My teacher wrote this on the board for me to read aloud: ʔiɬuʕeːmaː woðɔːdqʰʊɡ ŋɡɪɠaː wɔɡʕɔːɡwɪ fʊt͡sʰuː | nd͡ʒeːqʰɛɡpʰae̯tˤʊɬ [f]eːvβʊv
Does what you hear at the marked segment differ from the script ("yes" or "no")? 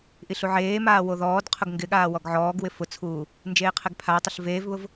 yes